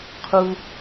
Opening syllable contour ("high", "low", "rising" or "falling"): low